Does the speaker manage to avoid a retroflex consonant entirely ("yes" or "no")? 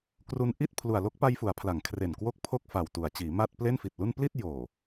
yes